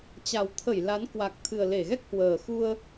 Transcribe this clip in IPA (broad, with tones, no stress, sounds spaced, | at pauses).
t͡ɕ a˨˩ w t̪ʰ ə˧˩ j l a˨˦ n k w a˨˩ k̚ t̪ʰ ɨ˨˩ ə̯ l e˧˩ ɣ ɛ˦˥ k̚ h w əː˨˩ x u˧ ə̯